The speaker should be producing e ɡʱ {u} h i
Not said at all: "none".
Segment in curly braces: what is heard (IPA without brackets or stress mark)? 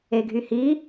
y